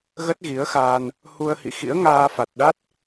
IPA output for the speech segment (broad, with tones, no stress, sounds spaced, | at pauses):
ɣ ə˦˥ t̚ ɣ i˨˦ ə̯ x aː˧ n | h u˧ ə̯ h ḭ˧˨ x ḭ˧˥ ə̯ ŋ aː˧ f a˨˩ t̚ ɗ a˦˥ t̚